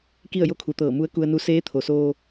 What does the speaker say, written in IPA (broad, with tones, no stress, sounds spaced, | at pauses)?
k i˥˨ ə̯ j o˥˨ kʰ u˩˧ t̪ ɤː˧˩ m u˧˥ ə̯ k u˧ ə̯ n u˧˥ s eː˧˥ t̪ʰ o˩ s oː˧